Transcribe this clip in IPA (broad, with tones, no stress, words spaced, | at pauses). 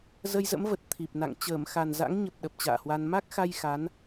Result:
zə˧jzə̰˧˥mvə˨˩t̚ t̪ʰi˨˩p̚ na̰˧˨ŋ t͡ɕəː˧˩mxa˨˩nza̰˧˥ŋɲə˨˩p̚ ɗə˨˩p̚t͡ɕa̰ː˧˨hwa˧n ma˦˥k̚xa˧j xa˨˦n